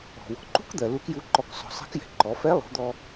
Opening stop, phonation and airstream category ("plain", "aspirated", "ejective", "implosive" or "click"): click